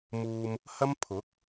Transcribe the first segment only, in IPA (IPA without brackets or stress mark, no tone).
m